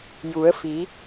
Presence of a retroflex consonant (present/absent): absent